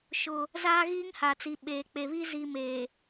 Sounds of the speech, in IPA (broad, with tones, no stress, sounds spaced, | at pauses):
ʃ ʊ˦ | z aː˦ ɣ iː˦ ŋ h a˨ t͡s i˨ ɓ eː˨ k͡p e˨ β i˦ z i˨ m eː˨